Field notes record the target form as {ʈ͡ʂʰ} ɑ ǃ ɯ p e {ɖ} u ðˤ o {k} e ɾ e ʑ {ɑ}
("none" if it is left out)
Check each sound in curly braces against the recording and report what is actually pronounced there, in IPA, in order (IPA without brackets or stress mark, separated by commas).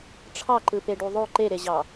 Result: ʈ͡ʂʰ, ɖ, ǃ, ɑ